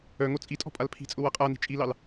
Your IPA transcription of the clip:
œ ŋ o t͡sʼ i tʼ ɔ̤ pʼ a l pʰ i̤ t͡sʼ ʊ w a qʼ a n i̤ t͡ʃʼ i l ɑ l

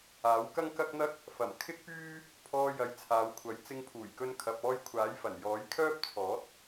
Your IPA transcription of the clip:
aː˨˥ w k ɐ˥ ŋ k ɐ˥ k̚ n̪ ɐ˥ k̚ | f ɐ˨˩ m kʰ ɪ˥ k̚ p yː˥ | pʰ ɔː˧ j ɐ˨˥ j t͡sʰ aː˨˧ w kʷʰ ɐ˨˥ j t͡s ɪ˧ ŋ pʰ uː˨˩ j k ɵ˧ n kʰ ɐ˨ p̚ ɔː˧ j kʷʰ aː˨˥ j f ɐ˨˩ n j ɔː˨˥ j kʰ œː˥ p̚ t͡sʰ ɔː˨˥ t̚

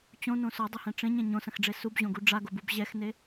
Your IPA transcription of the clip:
t͡ɕ õ n õ s ɔ dˤ ɐ h ɛ̃ ʈ͡ʂ ẽ ɲ ɛ̃ ɲ õ s ɐ̃ x ɖ͡ʐ e s u b ʑ õ ɡ u ɖ͡ʐ a ɡ o b u b ʑ ɛ x n e

